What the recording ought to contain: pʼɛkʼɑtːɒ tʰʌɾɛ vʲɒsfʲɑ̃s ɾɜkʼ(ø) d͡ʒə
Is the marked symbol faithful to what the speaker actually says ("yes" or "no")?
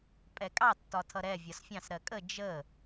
no